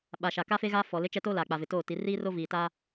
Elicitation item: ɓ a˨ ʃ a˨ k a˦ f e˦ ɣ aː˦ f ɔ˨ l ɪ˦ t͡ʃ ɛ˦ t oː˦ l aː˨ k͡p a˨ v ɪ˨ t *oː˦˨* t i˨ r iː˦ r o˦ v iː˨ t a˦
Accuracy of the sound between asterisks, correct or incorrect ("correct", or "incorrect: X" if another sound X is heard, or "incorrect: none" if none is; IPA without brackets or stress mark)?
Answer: correct